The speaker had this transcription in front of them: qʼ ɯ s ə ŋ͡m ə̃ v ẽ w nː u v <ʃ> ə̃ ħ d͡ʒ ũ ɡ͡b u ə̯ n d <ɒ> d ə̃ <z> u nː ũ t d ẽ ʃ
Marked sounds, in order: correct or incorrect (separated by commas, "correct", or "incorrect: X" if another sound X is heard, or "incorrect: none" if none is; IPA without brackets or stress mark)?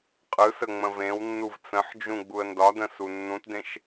incorrect: t͡s, correct, incorrect: s